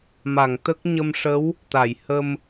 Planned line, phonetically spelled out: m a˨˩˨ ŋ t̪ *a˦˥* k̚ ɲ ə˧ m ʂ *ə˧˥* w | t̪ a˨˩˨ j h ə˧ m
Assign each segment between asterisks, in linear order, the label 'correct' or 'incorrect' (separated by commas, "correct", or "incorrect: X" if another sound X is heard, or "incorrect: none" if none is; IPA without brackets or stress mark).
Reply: incorrect: ə˦˥, correct